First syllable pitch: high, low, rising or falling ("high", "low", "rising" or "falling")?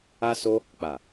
high